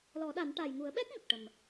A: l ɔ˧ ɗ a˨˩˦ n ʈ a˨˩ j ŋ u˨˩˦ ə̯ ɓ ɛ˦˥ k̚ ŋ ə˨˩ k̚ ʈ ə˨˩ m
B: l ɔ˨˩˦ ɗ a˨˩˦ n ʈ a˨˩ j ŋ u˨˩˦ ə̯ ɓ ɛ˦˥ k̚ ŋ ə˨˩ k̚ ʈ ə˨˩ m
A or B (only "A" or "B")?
B